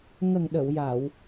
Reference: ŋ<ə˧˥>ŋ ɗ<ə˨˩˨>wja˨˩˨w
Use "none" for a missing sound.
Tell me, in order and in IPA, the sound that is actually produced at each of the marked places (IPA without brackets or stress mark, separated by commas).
ə˨˩, ə˨˩˨